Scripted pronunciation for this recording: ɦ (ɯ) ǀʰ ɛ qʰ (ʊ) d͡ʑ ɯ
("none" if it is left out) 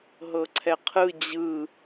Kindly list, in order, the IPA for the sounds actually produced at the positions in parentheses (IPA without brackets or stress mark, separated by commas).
ɤ, ɯ